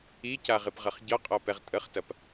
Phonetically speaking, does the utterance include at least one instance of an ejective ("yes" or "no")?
yes